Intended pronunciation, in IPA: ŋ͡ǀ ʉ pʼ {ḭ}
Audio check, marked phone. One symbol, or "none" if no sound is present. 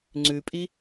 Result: i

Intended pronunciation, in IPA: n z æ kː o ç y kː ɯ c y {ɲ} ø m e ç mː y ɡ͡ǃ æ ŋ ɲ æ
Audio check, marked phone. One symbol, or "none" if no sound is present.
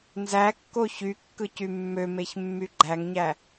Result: mː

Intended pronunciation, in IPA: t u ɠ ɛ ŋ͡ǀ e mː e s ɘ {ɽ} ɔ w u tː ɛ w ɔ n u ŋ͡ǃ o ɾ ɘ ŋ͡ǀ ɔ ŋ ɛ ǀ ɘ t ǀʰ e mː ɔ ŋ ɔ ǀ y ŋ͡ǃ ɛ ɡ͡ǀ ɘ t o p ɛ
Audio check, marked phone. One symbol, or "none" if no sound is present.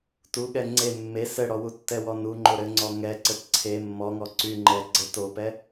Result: ɽ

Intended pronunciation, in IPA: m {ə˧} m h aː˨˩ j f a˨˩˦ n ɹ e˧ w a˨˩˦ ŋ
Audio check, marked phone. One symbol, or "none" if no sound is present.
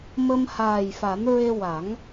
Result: ə˧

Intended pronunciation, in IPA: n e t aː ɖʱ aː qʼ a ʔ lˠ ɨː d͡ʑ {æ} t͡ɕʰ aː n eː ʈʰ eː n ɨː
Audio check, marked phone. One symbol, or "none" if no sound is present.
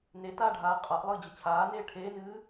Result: ə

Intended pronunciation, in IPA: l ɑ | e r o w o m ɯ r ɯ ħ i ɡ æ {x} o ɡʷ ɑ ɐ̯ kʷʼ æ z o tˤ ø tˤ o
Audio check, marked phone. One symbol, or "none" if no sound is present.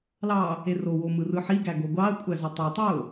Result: ɡ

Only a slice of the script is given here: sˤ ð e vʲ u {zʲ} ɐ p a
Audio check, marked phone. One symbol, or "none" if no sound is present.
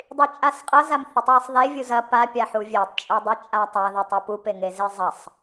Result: z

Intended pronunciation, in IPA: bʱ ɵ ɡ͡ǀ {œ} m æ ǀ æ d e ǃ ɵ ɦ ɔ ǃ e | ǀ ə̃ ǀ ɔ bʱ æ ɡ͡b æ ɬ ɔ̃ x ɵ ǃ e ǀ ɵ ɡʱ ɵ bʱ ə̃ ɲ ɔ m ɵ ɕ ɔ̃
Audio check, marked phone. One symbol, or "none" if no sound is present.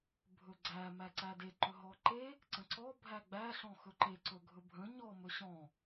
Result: æ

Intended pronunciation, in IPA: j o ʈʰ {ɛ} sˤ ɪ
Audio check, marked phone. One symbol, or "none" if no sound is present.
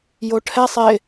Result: ɛ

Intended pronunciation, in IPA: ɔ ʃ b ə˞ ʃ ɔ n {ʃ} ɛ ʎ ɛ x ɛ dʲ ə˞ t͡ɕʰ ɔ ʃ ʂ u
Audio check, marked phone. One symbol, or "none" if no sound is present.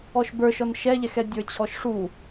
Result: ʃ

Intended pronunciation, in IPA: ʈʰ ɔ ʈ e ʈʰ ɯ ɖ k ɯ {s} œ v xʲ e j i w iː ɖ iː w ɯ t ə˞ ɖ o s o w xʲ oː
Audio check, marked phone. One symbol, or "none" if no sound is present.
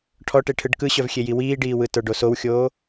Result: ɕ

